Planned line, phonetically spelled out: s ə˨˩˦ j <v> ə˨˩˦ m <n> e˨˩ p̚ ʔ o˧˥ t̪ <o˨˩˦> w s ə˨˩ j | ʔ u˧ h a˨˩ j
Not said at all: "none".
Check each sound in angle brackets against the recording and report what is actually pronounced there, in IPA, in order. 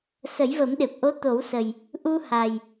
v, ɗ, o˨˩˦

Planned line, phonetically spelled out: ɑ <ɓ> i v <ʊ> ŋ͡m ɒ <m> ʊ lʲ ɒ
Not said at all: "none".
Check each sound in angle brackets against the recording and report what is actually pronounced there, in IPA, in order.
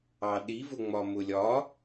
ɗ, ʊ, m

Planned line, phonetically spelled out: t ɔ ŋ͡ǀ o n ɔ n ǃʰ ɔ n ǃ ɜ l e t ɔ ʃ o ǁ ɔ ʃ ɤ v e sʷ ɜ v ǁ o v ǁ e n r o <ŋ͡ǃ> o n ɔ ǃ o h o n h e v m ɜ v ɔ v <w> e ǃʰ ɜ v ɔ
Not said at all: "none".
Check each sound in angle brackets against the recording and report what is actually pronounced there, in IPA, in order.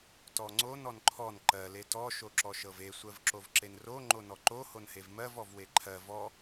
ŋ͡ǃ, w

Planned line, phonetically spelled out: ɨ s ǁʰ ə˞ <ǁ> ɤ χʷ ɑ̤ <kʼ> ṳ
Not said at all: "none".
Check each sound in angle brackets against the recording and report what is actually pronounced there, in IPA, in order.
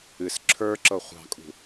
ǁ, kʼ

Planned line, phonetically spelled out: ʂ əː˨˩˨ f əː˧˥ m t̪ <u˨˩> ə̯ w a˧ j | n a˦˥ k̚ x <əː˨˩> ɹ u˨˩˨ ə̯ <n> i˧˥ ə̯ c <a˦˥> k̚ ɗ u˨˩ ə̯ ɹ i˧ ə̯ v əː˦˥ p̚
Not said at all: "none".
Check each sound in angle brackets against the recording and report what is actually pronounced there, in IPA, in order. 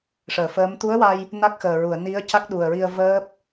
u˧˥, əː˨˩, n, a˦˥

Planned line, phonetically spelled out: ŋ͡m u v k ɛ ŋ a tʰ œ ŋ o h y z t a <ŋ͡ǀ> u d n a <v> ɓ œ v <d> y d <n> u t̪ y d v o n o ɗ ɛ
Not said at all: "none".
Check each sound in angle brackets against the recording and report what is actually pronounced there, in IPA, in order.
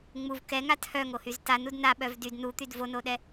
n, none, d, n

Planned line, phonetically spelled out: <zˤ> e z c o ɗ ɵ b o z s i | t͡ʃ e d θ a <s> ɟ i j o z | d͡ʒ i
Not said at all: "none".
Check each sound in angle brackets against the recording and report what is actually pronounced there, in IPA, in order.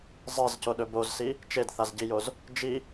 zˤ, z

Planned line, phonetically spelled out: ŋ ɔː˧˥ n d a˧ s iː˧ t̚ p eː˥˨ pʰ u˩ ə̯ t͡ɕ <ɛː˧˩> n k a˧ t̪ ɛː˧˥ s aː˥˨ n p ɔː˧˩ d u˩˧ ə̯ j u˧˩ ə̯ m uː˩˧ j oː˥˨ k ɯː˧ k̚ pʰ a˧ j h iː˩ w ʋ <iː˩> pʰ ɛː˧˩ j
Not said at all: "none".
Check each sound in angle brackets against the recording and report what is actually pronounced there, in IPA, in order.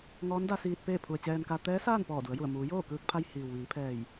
ɛː˧, iː˩˧

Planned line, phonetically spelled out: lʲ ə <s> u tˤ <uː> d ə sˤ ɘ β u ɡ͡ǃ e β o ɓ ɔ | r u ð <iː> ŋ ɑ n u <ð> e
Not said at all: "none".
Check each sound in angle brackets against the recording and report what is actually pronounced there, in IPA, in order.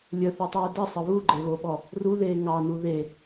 θ, uː, eː, ð

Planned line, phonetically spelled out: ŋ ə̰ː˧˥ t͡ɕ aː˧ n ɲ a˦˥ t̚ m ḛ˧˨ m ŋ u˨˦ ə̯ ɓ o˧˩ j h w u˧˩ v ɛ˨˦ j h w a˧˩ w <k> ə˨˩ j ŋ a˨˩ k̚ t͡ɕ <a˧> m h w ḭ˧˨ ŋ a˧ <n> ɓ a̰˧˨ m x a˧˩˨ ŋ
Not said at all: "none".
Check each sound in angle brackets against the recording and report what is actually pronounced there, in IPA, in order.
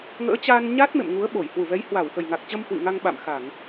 x, ə˧, ŋ

